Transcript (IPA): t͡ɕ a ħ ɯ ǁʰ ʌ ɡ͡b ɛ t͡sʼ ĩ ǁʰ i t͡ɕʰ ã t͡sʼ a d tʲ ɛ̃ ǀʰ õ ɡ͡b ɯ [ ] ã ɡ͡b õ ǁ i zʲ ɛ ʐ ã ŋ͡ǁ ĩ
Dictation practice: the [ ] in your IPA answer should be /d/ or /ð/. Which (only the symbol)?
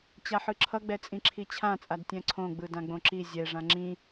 d